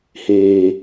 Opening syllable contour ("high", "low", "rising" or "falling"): low